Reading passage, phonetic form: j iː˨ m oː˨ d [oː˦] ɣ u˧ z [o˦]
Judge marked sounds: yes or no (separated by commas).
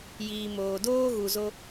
yes, yes